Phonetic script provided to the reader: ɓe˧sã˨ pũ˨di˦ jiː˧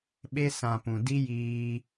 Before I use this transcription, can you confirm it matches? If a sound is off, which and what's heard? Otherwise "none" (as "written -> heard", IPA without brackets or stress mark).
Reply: none